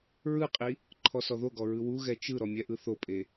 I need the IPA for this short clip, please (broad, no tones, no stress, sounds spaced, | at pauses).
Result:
ɹ ɯ qʼ i | ǃʰ ɔ s ɔ ð o ɡ ɔ ɹ ɯ w u ɣ ɛ t͡ʃ ɯ ɾ ɔ mʲ ɛ ʔ ɯ θ o pʼ e